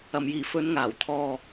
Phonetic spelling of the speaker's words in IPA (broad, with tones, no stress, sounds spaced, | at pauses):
ɐ˨˩ m j iː˨˩ f ɵ˨˧ n ŋ aː˨˩ w t̪ʰ ɔː˨